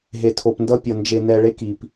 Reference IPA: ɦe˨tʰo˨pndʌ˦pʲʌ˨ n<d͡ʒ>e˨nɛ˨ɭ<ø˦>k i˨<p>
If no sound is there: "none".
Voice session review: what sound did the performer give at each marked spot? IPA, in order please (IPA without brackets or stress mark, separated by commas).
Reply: d͡ʒ, e˦, p